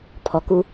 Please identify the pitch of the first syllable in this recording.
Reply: low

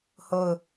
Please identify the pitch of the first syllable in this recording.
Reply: falling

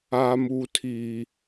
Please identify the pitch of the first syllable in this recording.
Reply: high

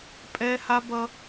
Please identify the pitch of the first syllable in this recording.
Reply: high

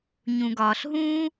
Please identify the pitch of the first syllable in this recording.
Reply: low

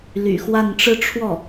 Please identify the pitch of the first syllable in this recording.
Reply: low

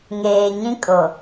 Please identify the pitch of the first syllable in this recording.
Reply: low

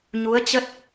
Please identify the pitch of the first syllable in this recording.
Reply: rising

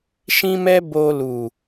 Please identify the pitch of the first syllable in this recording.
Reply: high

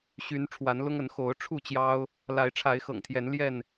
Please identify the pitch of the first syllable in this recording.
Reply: rising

